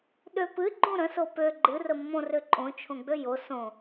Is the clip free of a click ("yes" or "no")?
no